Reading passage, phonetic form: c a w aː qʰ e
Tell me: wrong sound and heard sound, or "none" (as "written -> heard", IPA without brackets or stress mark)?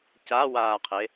none